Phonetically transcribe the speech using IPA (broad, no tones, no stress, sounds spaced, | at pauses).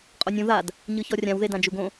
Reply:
qʼ o nʲ ũ ð a d | ɲ ɯ ç ɔ rʲ ã w ð e d ã d͡ʒ u ɡ õ